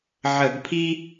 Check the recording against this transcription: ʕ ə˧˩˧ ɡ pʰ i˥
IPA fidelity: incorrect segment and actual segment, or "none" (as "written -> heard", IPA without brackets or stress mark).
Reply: none